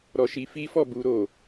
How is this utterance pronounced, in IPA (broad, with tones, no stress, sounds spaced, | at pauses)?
ɾ ɔ˧ ʃ i˧ f i˦ f ɔ˦˨ b u˧ ɾ o˨